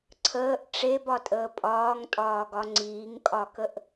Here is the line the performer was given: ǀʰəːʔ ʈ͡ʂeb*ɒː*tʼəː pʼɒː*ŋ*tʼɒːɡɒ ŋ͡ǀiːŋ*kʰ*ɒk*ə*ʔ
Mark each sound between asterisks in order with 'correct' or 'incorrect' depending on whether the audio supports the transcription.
incorrect: ɒ, correct, incorrect: kʼ, correct

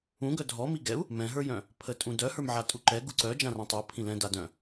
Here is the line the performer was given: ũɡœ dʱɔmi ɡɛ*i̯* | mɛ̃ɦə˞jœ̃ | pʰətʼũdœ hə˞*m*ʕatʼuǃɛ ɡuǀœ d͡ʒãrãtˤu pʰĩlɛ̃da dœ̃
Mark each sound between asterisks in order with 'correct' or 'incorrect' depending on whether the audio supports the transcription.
incorrect: u̯, correct

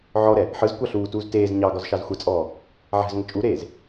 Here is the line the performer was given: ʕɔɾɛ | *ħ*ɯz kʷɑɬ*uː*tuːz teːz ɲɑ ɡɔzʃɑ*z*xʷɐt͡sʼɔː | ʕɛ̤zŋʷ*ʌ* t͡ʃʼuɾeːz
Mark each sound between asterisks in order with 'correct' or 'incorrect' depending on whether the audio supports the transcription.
correct, correct, correct, incorrect: ə

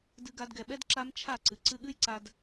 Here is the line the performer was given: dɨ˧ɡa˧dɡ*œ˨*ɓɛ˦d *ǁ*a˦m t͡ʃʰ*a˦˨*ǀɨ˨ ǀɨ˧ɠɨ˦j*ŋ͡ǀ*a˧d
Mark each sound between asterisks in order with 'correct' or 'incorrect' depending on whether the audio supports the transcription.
incorrect: ɛ˨, correct, correct, incorrect: ǀ

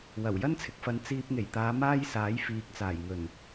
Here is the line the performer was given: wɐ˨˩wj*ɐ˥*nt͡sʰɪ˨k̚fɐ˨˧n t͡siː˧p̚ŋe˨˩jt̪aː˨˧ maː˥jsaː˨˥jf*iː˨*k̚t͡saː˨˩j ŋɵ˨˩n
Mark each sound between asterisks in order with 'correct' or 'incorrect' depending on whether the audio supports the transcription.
correct, correct

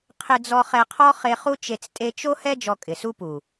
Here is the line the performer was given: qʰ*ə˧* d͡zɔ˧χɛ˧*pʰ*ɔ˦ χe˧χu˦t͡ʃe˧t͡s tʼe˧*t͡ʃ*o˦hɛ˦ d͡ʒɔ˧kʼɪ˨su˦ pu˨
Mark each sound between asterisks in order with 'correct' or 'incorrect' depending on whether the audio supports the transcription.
incorrect: ɪ˧, incorrect: qʰ, correct

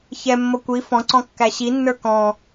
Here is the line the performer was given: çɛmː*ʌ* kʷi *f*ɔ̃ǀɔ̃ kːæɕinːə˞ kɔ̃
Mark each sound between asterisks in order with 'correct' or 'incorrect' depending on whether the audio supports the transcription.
correct, correct

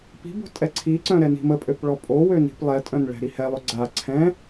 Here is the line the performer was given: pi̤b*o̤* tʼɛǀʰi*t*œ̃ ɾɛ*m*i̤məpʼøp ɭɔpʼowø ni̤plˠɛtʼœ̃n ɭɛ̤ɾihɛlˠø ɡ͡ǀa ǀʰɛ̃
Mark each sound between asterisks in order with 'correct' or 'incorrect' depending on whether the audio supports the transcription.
correct, incorrect: ǀ, incorrect: n

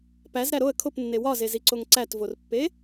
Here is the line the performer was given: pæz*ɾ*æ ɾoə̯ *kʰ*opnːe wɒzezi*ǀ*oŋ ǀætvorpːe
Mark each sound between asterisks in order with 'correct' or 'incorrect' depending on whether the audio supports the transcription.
correct, correct, correct

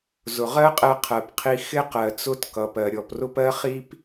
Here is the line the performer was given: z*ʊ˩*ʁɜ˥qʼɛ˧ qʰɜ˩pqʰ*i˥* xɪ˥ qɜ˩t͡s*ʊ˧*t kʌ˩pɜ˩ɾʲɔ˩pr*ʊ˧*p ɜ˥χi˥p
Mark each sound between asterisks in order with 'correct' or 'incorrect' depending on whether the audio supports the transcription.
correct, incorrect: i˧, correct, incorrect: ʊ˥

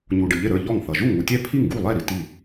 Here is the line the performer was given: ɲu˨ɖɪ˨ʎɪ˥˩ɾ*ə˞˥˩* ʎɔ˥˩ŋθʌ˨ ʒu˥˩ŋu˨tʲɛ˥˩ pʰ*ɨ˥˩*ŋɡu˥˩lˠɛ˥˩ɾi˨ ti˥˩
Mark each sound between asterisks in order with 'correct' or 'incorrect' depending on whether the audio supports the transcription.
correct, incorrect: i˥˩

